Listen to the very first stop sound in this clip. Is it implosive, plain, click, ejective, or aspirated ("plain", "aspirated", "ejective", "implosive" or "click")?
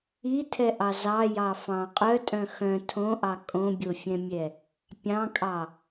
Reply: aspirated